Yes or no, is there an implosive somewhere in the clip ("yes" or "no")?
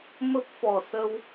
no